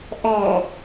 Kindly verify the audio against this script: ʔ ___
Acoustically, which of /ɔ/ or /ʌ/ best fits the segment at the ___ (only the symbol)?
ɔ